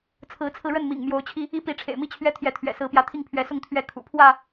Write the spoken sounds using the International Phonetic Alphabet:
t͡sʰ ɹ̩˨˦ t͡sʰ ɹ̩˧ ɻ ə˥˨ n m ḭ˨˩ ŋ m j o˨˦ ʊ̯ t͡ɕʰ i˧ | i˦ p i˨˦ ʈ͡ʂʰ ḛ˨˩ ɪ̯ m i˥˨ t͡ɕʰ ɥ ɛ˦ t̪ʰ j ɛ˨˦ t̪ʰ ɥ ɛ̰˨˩ s ɹ̩˨˦ p j ä˨˦ t̪ʰ i˥˨ ŋ pʰ ɥ ɛ˨˦ s ʊ˥˨ ŋ t̪ʰ ɥ ɛ˨˦ kʰ ṵ˨˩ pʰ w ä˥˨

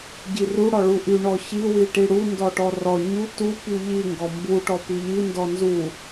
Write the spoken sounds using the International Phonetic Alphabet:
ɟ i r u ɽ ɔ ɭ u ʔ y ɳ ɔ ç i w i ʈ i ɽ u n d ɔ ʈ ɔ r ɔ ɲ u t u p y ʎ i ŋ ɡ ɔ m b u ʈ ɔ p i ʎ i n d ɔ n z u

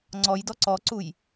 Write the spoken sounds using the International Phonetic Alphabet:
ŋ͡ǀ ɔ j d ɔ ǀ ɔ ǀ u j

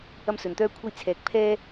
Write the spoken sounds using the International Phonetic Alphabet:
ɐ˥ m s ɵ˧ n t̪ œː˥ kʷʰ ɐ˥ j t͡sʰ ɛː˧ k̚ pʰ ɛː˥

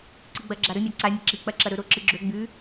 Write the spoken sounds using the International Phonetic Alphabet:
ǀ ɨ ɡ͡b ɐ ɡ͡ǁ a ɾ ɵ mʲ a ǀ a mʲ ɨ ǁ i k͡p ɐ ǁ ɐ ɾ ɵ ɾ o ǁ ɨ ɡ͡ǁ ɵ ɡ͡b ʉ

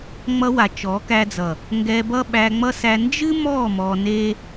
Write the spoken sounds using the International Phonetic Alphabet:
ŋ͡m ʌ˧ w a˨ t͡ʃ ɔ˨˦ k æ˧ d͡z ʌ˨ | ŋ ɡ ɛ˧ b ʌ˦ ɓ æ˧ ŋ͡m ʌ˦ s æ˧ n d͡ʒ ɨ˦ m ɔ˦˨ m ɔ˧ n e˦

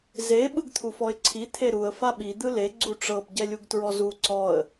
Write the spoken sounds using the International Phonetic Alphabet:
z e ɓ ɯ ɡ t̪ʰ u f ɔ ɪ̯ ǀʰ i t̪ʰ e ɾ u ə̯ f a ɓ i d̪ ɯ l e ɡ͡ǀ u ʈ͡ʂ ɤ b ɟ ɛ lʲ u ɡ t ɹ ɔ z u ǀ ɔ ə̯

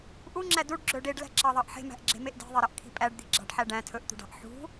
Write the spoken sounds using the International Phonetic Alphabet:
ʔ u ŋ͡ǁ æ d u ɖ ɡ͡ǁ ɵ ɖ e ɖ l æ̤ ǁ ɑ ðˤ ɑ ʔ ħ e̤ m æ̤ ʔ ɡ͡ǁ e̤ m e ʔ d e̤ ðˤ e ɾ ɑ ʔ kʰ i̤ pʼ æ ɖ d̪ i̤ ɡ͡ǁ ɑ̤ ɖ ħ æ ɖ æ̃ tʰ ɵ ʔ t̪ ṳ ɖ ɑ̤ ʔ ħ ṳ

